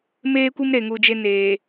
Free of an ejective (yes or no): yes